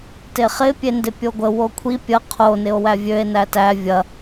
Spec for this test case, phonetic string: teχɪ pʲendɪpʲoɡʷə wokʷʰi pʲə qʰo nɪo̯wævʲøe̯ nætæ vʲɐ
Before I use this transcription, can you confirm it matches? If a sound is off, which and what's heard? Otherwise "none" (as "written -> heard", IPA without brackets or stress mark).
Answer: none